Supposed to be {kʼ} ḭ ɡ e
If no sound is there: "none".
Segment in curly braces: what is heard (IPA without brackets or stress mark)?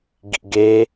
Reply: ɡ